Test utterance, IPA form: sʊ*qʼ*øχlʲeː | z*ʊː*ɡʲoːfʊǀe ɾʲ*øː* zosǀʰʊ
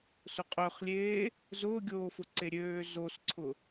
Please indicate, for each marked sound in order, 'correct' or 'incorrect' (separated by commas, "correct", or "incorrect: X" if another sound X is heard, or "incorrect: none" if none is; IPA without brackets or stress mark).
correct, correct, correct